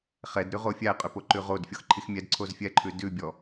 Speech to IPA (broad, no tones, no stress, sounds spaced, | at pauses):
χ ɛ d ɾ ʉ ʁ o fʲ æ qʼ ʏ p o ǃ ʉ ʁ o d fʲ ɔ x ǃʰ i x mʲ ɛ d ǀʰ o z fʲ ɛ ǃʰ ʉ d ʉ bʲ ɔ